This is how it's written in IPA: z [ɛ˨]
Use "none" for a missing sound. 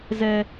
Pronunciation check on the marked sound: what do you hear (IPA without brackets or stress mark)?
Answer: ɛ˦